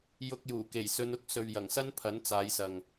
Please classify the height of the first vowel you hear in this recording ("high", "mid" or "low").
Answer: high